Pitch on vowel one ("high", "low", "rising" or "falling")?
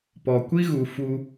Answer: low